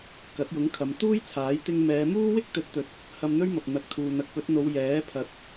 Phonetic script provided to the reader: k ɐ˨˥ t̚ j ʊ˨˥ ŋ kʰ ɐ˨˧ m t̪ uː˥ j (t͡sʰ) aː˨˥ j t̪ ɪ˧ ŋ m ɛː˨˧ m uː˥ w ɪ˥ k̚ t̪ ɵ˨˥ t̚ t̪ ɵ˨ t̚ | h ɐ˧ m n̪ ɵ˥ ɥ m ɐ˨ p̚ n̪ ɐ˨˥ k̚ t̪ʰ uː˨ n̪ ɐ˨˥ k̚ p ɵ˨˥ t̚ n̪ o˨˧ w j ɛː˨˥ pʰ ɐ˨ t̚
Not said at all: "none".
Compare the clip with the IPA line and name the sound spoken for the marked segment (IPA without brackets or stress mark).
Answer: t͡sʰ